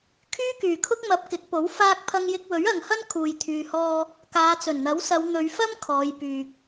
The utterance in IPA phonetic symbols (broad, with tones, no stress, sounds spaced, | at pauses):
kʰ yː˥ k yː˨˩ kʰ ʊ˥ k̚ m ɐ˨˥ p̚ k ɪ˨˥ k̚ p o˨˥ w f aː˥ k̚ pʰ ɐ˧ ŋ j ɪ˧ k̚ w ɵ˨˥ ɥ ɐ˨ ŋ h ɐ˥ n kʰ uː˨ j t̪ʰ yː˨ h ɔː˧ | k aː˨˧ t͡s ɵ˨˩ n n̪ ɐ˨˥ w s ɐ˨˧ w n̪ ɵ˨˧ ɥ f ɐ˥ m kʰ ɔː˨˧ j p yː˨ k̚